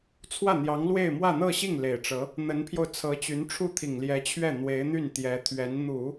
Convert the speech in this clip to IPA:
t͡sʰ w ä˥˩ n̪ j ɑ˧˥ ŋ l w e˥˧ ɪ̯ m w ä˥˧ n̪ ɤ˥˧ ɕ i˥˩ ŋ l e˨˩ ɪ̯ ʈ͡ʂ ɤ˧˥ | n̪ ə˧˥ n pʰ j o˧ ʊ̯ t͡sʰ ɤ˧˥ t͡ɕ y˧˥ n ʈ͡ʂʰ u˥˩ t̪ʰ i˨˩ ŋ l j ɛ˧˥ t͡ɕʰ ɥ ɛ˥˩ n̪ w e˧˥ ɪ̯ n̪ y˥˩ n t̪ j ɛ˧˥ t̪ʰ ɥ ɛ˧˥ n n̪ u˨˩˦

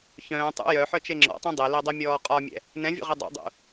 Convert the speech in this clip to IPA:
ç œ̃ː tˤ ṵ j œ ħ œ t͡ʃ e ŋ͡ǁ ɔ̰ tˤ ũ dˤ e l ɛ dˤ ɛ mʲ ɔː qʼ ɒ mʲ ɛ̰ | n ɛ̃ vʲ ṵ ʁ ɛ dˤ ɛ̰ dˤ ṵ

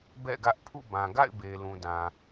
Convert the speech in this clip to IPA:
b ɛ̰˦˨ ɡ ä˦ ʔ pʰ ṵ˦˨ b ã˨ ɡ a̰˦˨ ɪ̯ b e˨ l ũ˨ d ã˨

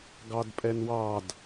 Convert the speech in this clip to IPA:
ɡ ɑ d pʼ ɛ n w ɑ d

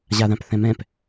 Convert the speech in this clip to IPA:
ʑ a ð ã p θ ɛ̃ m ɛ̃ p

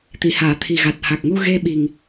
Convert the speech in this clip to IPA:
t̪ i˨˩˨ h aː˨˩˨ t̪ʰ i˨˩ ɣ a˨˩ t̚ h a˨˩ k̚ ŋ u˧ ɣ e˧ ɓ i˨˩ ŋ

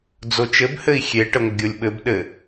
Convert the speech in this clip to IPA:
d͡z o t͡ʃ ɘ b h ɘ i̯ xʲ e ʈ ə ŋʷ ə ɡʲ o lʲ ɓ ɘ b ɗ ɘ

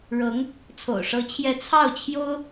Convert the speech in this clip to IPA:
ɻ ɤ˧˥ ŋ | t͡sʰ o̰˨˩ ʊ̯ ʂ ɤ˧˥ t͡ɕʰ j ɛ˧˥ t͡sʰ ɑ˥˩ ʊ̯ t͡ɕʰ j o˥ ʊ̯

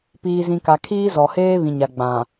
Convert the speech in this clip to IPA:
p iː˨ z ĩ˨ k a˨ kʰ iː˦ z ɔ˨ h eː˦ β ĩ˨ ɲ a˨ ɡ͡b ã˨

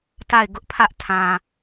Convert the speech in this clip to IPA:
t a˦˨ ɪ̯ ɡ ʊ˦ ʔ pʰ ä˦ ʔ tʰ ã˨

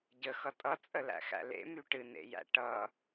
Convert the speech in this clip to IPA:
ɟ ə x ʌ tʼ ʌ t͡sʼ ə l æ̰ x æ̰ l ḛ m y ʈ ɨ n ḛ j æ̰ ʈ ʌ

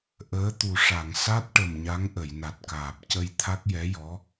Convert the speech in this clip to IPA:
ʔ əː˧˥ t̪ u˨˩ ʂ a˨˩˨ ŋ s a˦˥ t̚ ʈ ə˨˩ m ɲ a˧˥ ŋ ʔ ə˨˩˨ j n a˨˩ t̚ k aː˨˩ p̚ c ə˧ j t̪ʰ a˦˥ k̚ j ɛ˧˥ j ɔ˧˥

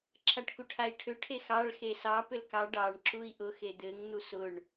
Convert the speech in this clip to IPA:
ǁʰ a ʈ k u ʈʰ a i̯ ʈʰ ʏ ʈʰ e x ɑ ɭ x e s ɑ p ʏ l k ɑ ɖ ɑ ɳ ǁ u i̯ ʔ ʊ x e d̪ ɘ ŋ n̪ u s ʊ ɳ

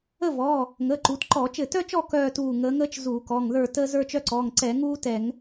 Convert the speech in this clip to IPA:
ə˥˧ v ɔː˩˧˩ | ŋ əː˩˧˩ ǃ u˩˧ t ǃ ɔː˧˩˧ t͡ʃ ɘ˧˩ t œ˥ t͡ʃ ɔ˥˧ k œː˥˧ t uː˧˩ ŋ əː˩˧ ŋ əː˥ t͡ʃ z uː˧˩˧ k ɔ˩˧˩ ŋ ð ə˞˥˧ t əː˥ z ə˞˥ t͡ʃ œ˥ ǀ ɔː˩˧˩ ŋ ǀ ɛ˧˩˧ ŋ uː˥ t ɛ˧˩˧ ŋ

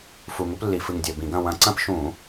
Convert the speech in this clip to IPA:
f u˧˩ ŋ u˦ p lː i˧˩˧ f ɨ˧˩ ŋ dʲ ɐ˧˩ b ĩ˧˩˧ ɡ ɐ̃˥˨ w ɐ̃˨˦ ǀ ɐ̃˦ p ʃ ũ˧˩˧

